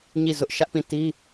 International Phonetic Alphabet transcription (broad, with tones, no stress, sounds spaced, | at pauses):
ɲ i˦˨ z ʊ˦ ʔ ʃ ä˦ ʔ p ĩ˦˨ t i˦